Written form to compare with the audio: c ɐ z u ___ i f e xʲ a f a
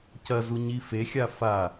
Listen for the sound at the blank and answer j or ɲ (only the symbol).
ɲ